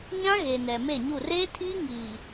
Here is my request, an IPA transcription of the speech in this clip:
ɲ ã˦ ɣ e˨ n ɛ˨ m e˦˨ ɲ u˦˨ r eː˦ tʰ iː˦ ŋ iː˨

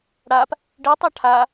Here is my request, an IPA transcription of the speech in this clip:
ɽ a p | ɖ i tˤ a ʈʰ a

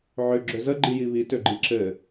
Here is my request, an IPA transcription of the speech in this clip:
ʕ ø ɡ͡ǁ ø z ə ɡ͡ǃ i j i β i t ø ɡ͡ǃ i ǁ ɘ

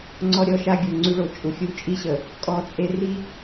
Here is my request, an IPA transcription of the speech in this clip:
ŋ͡ǀ ɔ˦ ɾʲ ɔ˦ ʃ a˦ ɡʲ o˨ ŋ͡ǀ y˦ ɭ o˨ t͡ʃʼ u˨ xʲ u˦ t͡ʃʼ i˦ ɕ ə˨ | kʼ ɔ˦ t͡sʼ e˦ r i˦

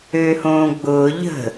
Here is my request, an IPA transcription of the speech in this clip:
øː h õː ɡ͡b ʊː ʎ ə̤

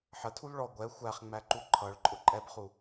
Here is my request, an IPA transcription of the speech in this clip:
ħ ə tʰ u l ɭ ɔ ɡʷ ɛ xʷ æ χ ŋ͡m æ ǃ u ǃʰ ʌ ɭ ǃʼ ʊ ǃʼ ɛ b χ u

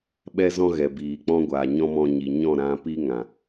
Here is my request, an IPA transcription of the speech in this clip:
ɓ ɛ˦ z ɔ̃˦ ɣ ɛ˨ b iː˨ k͡p ɔ̃˦ ɡʷ aː˨ ɲ ɔ̃˦ m ɔ̃˧ ɲ i˨ ɲ ɔ̃˦˨ ɾ ã˧ p i˦ ŋ ã˨

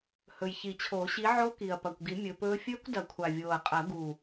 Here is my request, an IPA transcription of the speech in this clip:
h ɵ˨˩ j ç i˨˩˦ t͡ɕʰ oː˨˩˦ ɕ i˨˦ ʕ o˦˥ k i˨˩ ɐ̯ p ɐ˨˩ kʷ ɡ i˨˩˦ mʲ ɵ˨˦ p ɵː˦˥ fʲ ɵː˦˥ kʷ d ɐ˨˩˦ kʷʰ a˨˩ vʲ oː˨˩ ɐ̯ qʼ ɐ˨˩˦ ɡ u˨˩

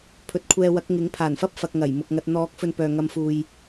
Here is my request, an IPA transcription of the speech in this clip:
pʰ ɵ˨˥ t̚ kʷʰ ɛː˧ w ɐ˨˥ k̚ ŋ ɪ˨˥ ŋ pʰ aː˨˩ n f ɐ˥ p̚ f ɐ˧ k̚ ŋ ɐ˨˩ j m ʊ˨ k̚ ŋ ɐ˧ t̚ n̪ ɔː˨˥ k̚ f ɵ˨ n p œː˨ ŋ ɐ˧ m f uː˨ j

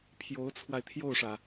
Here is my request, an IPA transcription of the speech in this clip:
pʰ j o˧˥ ʊ̯ t͡sʰ w a˧ ɪ̯ t̪ʰ j o˥˩ ʊ̯ ʂ ä˩

